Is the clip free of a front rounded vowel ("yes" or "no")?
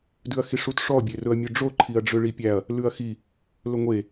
no